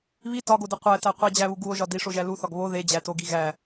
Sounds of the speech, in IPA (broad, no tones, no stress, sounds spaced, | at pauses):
β i t ɒ ɡ o d e qʷ æ t æ qʷ i d͡ʑ æ β u ɡ u o̯ ʒ ɒ d i ʂ o ʒ æ l u θ ɒ ɡ β o ð e d͡ʑ æ t o ɡ i ɣ æ